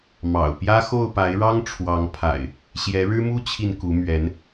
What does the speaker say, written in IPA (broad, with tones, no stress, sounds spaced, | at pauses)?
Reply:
m ɑ̰˨˩ ʊ̯ p j ä˦ x o˥˨ ʊ̯ p a˨˦ ɪ̯ ɻ ɑ˦ ŋ ʈ͡ʂʰ w ɑ˨˦ ŋ pʰ a̰˨˩ ɪ̯ | ɕ j ɛ˨˦ ɻ ɻ̩˦ m u˦ t͡ɕʰ i˨ n k u˨˦ m ɥ ɛ˨˦ n